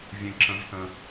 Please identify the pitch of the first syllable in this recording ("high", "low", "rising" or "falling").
low